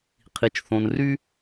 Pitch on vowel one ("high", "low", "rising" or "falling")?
low